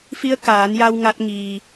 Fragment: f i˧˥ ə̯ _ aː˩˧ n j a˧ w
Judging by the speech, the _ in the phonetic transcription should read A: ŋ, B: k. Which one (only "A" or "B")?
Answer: B